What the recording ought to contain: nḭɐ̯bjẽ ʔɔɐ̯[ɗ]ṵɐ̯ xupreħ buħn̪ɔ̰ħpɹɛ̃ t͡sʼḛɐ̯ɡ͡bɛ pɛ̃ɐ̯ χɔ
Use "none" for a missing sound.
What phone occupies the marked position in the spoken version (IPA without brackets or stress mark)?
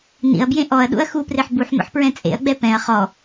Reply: ɗ